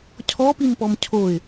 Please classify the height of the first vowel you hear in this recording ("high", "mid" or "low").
mid